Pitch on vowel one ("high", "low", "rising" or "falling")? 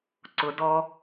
high